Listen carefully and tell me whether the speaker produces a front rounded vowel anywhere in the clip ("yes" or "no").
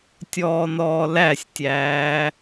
no